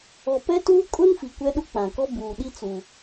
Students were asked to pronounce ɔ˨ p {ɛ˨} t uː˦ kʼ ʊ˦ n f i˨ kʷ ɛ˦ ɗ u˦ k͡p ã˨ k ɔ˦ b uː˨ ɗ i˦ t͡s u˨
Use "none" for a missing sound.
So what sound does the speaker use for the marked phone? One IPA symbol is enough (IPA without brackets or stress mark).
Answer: ɛ˦